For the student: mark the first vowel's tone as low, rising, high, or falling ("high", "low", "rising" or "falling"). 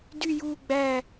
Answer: falling